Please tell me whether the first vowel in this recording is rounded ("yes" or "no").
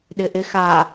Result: no